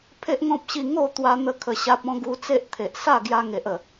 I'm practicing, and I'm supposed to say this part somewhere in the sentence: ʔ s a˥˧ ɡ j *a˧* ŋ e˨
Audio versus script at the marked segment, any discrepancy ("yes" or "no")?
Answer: no